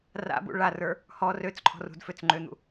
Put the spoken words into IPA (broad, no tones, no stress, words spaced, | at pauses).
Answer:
ra̰bṵ ɭarə˞ | hɔ røt͡sǃʰɔ̤r ṳdføt͡sŋ͡ǃøn̪ṵ